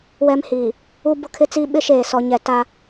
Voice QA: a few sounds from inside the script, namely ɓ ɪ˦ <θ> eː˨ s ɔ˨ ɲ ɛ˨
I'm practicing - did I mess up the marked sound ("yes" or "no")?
yes